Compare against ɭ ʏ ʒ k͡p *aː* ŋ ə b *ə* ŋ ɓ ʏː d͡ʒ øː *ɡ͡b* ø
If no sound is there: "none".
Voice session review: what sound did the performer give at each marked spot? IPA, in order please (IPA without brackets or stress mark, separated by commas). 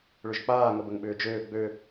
aː, ə, ɡ͡b